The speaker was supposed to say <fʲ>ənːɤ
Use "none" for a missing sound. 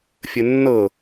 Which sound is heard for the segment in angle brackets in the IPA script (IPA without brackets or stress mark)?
fʲ